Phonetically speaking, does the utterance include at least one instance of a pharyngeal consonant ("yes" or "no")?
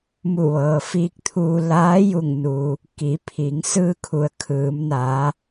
no